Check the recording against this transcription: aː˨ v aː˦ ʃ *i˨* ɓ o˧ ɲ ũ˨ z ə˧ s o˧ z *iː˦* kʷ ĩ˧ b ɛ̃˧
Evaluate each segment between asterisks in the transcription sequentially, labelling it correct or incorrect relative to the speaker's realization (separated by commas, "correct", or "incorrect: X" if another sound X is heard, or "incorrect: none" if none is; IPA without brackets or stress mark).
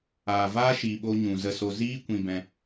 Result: incorrect: iː˨, correct